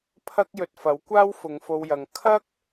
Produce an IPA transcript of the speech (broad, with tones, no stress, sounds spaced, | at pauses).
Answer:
pʰ ɐ˥ k̚ j ɵ˧ t̚ f ɐ˨˥ w kʷ aː˥ w f ʊ˨˧ ŋ f o˧ w j ɐ˨ ŋ kʰ ɐ˥ k̚